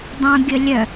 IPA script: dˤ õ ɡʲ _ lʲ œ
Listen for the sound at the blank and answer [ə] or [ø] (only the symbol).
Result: ə